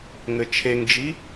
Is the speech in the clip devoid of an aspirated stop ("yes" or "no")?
no